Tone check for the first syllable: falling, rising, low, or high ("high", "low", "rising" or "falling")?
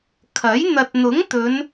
rising